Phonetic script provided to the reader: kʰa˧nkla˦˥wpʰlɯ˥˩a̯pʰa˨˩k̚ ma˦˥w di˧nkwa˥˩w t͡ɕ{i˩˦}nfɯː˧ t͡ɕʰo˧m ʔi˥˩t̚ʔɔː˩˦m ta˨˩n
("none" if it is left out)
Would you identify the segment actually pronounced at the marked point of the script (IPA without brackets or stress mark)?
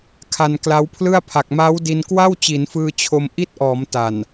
i˩˦